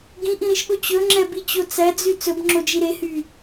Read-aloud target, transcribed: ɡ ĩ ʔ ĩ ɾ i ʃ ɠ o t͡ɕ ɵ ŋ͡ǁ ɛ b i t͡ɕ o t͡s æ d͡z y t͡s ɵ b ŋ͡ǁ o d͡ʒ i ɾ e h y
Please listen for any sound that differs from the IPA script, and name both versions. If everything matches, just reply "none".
none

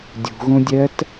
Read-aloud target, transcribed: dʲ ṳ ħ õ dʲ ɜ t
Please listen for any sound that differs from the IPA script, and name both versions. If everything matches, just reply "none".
ħ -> ɣ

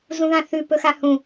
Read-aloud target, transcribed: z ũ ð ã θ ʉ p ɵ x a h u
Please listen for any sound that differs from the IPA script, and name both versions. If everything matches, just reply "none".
u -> ũ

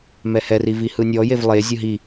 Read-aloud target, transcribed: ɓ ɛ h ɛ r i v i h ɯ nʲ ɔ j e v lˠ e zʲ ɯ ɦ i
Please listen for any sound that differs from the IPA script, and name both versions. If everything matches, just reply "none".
ɓ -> m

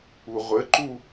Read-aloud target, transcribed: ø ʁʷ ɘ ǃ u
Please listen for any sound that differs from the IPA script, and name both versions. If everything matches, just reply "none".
ø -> u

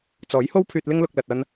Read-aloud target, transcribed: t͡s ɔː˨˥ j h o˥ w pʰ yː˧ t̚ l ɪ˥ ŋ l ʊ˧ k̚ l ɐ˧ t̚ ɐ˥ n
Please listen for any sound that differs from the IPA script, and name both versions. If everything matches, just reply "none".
none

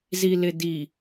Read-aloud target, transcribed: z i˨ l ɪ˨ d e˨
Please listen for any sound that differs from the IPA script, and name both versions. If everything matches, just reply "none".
e˨ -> i˨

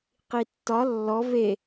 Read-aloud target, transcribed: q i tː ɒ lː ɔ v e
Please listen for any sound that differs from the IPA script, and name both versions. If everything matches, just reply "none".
none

